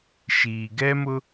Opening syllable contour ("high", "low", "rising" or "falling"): low